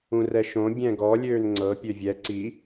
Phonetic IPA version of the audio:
ũrɛʃõ bʲɛ̃ɡɔ lʲøːnŋ͡ǀɤ pʲøvʲɛ ǀi

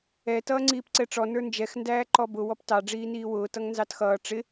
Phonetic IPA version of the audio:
ɛ tʌːŋ͡ǀiːpǀɛʈ͡ʂɔ nə˞nd͡ʒɛx ndæːǃɔbʊ wɔptɑ ɖ͡ʐiːniːwʊː tʌŋnzɑtxʌː ʈ͡ʂɪ

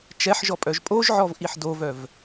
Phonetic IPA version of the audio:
t͡ʃɛħʒɔ pʼœʒpʼoʒʕɔv ʔiħdovœv

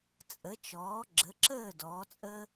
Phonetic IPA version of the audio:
t͡sʼə˩˥t͡ʃɔː˩˥ɡ͡ǁə˩˥ǁəː˥˩ dɔː˩˥t͡sʼəː˥

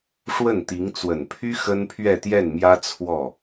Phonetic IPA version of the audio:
ʂwə˥˩nt̪i˧˥ŋ t͡swə˨˩npʰy˥ xə˥npʰɥɛ˥˧t̪jɛ˥˩nmjä˥ t͡sʰwɔ˥˩

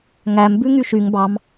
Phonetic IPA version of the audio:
ŋæm bʉŋyʃyŋ bɑm

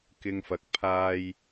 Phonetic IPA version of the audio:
kɪ˧ŋfɐ˨˥k̚ pʰaː˧j

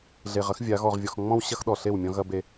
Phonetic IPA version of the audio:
ɮe˨ʁɐ˦x vʲa˨˦ ɣɔ˨ʁvʲɔ˨x ŋ͡mɔ̃˦wɕɐ˦x ɗɔ˨ɬe˦˨wmʲɔ̃˦ ɣɐ˦be˦

